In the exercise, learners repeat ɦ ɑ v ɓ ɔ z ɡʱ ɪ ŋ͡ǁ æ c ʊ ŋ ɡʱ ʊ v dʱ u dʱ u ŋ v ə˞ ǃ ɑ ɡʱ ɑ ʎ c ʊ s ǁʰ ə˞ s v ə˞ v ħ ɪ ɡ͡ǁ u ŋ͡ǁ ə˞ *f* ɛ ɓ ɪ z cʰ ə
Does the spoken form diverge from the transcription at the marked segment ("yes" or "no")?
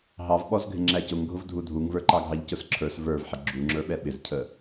yes